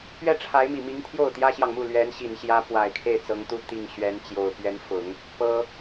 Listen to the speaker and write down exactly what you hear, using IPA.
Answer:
pɥɛ˥˩ʈ͡ʂʰa˧˥ɪ̯mi˨˩mi˧˥ŋ t̪ʰjo˥˩ʊ̯t̪jä˥ɕjɑ˨ŋmu˥˩ lɥɛ˧˥n ɕi˨˩nɕjä˧˥ pwa˨˩ɪ̯kʰe˥˩ɪ̯t͡sɤ˧˥ŋt̪u˥ t̪i˥˩ŋ ɕɥɛ˧˥nt͡ɕjo˨˩ʊ̯ pɥɛ˧˥nfʊ˨˩˦ŋ | pɤ˥

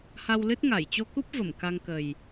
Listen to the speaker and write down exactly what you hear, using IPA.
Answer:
ha˧wlɨ˦˥t̚ŋa˧˩j t͡ɕo˧ku˦˥p̚ və˧˩mka˧ŋkə˨˩j

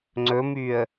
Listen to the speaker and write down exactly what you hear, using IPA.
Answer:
ŋ͡ǀɵmyə̯

